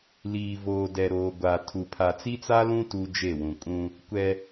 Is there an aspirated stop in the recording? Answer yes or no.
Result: yes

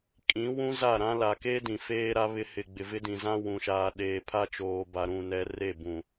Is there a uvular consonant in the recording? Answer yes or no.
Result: no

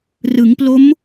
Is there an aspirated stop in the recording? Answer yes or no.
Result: no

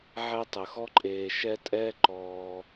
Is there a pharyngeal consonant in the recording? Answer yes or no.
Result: yes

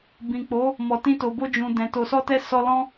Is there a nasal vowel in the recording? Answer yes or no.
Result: yes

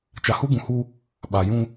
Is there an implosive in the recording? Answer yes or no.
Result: yes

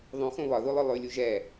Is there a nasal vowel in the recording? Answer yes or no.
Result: yes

